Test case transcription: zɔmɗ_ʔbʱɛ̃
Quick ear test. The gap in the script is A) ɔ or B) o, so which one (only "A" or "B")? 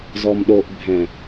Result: B